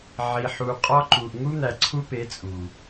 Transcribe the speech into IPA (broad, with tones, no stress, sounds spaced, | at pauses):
ʕ i˨ ħ u˨ qʼ ɒ˦ ǃ u˨ ʔ ŋ u˦ n̪ æ˨ ǀʰ u˦ p e˨˦ t͡sʼ u˨